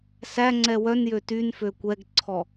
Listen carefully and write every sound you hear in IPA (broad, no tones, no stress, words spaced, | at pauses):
sæŋ͡ǀɛ wœnjø tynfø kʷɛɡǀʰɔ